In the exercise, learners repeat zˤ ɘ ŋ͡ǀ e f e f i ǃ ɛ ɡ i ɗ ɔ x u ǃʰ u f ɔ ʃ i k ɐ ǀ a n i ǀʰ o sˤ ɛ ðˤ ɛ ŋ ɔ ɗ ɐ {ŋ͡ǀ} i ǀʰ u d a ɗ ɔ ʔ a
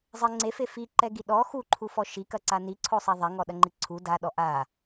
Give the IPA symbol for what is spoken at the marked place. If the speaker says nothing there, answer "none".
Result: ŋ͡ǃ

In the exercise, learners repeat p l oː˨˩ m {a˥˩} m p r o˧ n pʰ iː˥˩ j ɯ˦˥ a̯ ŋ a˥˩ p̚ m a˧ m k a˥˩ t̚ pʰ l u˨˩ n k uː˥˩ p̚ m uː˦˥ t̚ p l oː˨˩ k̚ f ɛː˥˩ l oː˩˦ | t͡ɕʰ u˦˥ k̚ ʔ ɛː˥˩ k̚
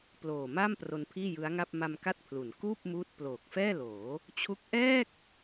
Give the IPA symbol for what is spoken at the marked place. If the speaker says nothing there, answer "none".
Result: a˥˩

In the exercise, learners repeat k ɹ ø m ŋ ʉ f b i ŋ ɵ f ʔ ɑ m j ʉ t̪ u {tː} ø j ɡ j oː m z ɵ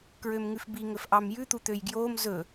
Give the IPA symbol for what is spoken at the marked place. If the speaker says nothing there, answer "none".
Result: t̪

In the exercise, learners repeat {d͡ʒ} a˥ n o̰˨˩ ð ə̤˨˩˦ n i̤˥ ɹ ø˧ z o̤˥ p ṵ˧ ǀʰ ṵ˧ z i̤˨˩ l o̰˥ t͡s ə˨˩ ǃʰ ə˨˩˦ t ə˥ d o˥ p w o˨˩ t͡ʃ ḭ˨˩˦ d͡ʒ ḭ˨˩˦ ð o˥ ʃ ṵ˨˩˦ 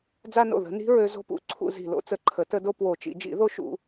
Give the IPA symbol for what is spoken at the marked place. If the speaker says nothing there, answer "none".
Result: d͡z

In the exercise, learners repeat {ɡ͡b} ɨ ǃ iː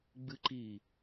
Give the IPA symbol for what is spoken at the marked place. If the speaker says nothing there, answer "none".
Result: ɡ͡b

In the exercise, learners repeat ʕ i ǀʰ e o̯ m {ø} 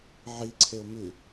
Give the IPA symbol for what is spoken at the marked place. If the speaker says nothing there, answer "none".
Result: ʉ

